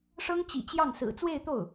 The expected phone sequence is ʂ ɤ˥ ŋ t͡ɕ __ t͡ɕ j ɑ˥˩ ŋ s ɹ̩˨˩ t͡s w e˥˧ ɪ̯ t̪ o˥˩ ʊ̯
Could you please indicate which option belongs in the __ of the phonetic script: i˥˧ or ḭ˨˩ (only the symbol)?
ḭ˨˩